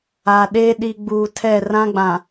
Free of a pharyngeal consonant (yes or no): yes